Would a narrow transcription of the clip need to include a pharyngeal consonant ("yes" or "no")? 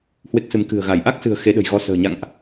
no